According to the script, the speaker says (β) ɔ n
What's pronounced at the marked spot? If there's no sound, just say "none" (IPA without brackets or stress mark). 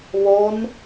β